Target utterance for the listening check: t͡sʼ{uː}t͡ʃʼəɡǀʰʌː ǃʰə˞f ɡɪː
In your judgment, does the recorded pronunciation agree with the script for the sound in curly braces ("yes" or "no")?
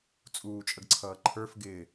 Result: yes